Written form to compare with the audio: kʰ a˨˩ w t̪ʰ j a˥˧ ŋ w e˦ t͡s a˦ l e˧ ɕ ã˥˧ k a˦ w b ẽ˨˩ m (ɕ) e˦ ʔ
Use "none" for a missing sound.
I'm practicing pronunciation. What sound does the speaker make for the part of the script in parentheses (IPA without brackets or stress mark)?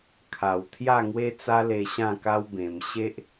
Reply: ɕ